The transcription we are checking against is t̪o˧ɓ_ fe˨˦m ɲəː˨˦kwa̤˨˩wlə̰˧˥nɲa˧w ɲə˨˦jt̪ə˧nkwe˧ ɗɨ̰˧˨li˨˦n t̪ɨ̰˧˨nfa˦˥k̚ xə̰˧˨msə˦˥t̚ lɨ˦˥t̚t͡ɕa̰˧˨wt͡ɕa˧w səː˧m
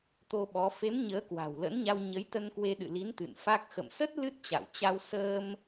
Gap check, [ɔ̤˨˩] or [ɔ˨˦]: ɔ˨˦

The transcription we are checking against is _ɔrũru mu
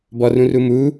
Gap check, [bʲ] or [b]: b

